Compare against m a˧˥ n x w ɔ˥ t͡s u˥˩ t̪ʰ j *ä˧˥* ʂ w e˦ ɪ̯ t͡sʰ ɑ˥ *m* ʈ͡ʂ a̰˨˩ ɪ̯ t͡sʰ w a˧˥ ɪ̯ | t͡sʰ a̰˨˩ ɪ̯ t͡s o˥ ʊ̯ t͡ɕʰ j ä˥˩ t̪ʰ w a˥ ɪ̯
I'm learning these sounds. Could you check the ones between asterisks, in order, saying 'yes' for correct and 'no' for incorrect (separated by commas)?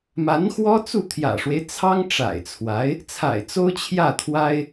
no, no